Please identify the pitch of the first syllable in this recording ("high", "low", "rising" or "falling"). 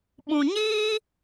low